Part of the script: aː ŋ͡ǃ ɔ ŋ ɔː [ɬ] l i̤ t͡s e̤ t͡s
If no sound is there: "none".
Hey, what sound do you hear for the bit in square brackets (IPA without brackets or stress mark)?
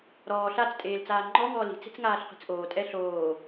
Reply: none